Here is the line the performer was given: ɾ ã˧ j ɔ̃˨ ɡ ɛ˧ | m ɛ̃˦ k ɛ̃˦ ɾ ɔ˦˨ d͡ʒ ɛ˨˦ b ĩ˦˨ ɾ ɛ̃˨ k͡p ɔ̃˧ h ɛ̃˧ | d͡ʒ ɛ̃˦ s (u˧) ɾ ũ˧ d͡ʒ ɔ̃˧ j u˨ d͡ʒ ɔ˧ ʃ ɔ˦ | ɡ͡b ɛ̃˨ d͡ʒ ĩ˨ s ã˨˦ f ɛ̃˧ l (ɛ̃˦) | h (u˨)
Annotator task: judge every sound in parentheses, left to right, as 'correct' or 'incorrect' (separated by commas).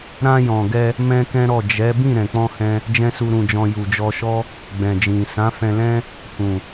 correct, correct, incorrect